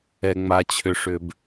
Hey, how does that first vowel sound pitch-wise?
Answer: low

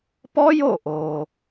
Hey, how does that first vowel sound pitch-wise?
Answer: high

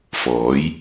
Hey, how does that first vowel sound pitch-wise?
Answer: rising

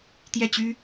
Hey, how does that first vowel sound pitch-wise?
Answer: falling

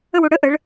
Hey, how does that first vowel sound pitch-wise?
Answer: falling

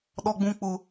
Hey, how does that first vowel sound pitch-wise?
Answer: high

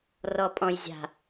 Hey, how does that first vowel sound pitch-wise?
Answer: low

